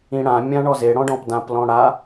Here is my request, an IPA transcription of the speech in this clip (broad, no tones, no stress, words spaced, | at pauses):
ĩɽã mʲãɳɔze ɽɔ̃ɖɔ̃pdãp lɔ̃ɽa